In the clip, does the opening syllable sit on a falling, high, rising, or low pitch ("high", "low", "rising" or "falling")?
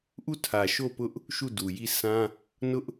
falling